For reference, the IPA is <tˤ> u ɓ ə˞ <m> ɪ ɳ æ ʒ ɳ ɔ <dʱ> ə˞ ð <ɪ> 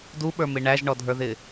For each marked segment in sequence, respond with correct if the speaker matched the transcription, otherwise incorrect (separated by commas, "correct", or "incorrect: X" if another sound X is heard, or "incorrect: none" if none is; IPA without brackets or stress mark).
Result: incorrect: d, correct, correct, correct